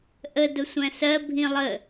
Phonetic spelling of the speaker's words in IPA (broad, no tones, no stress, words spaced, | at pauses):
ʔə dʊsʷæ̃sɜ bʱĩlˠə